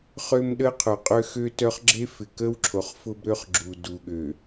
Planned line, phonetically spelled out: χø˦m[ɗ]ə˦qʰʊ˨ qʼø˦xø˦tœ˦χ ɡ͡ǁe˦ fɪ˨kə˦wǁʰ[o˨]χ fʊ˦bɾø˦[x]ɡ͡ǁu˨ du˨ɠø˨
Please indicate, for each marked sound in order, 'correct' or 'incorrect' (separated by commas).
correct, correct, incorrect